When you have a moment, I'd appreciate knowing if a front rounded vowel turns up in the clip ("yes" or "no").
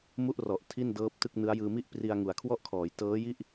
no